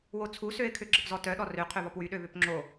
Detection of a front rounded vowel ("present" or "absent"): present